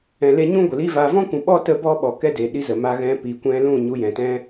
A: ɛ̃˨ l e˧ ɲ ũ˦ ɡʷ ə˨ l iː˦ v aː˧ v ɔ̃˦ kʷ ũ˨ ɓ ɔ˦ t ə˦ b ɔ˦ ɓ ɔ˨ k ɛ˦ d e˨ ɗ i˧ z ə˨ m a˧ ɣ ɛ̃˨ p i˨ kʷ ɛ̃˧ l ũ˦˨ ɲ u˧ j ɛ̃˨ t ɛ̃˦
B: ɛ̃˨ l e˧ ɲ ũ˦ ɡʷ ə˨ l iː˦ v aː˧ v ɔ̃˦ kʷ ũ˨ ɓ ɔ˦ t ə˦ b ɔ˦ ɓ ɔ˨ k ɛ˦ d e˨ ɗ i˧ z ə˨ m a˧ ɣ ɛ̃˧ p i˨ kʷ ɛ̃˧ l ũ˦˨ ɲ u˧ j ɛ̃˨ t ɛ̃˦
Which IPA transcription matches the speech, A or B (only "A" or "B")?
B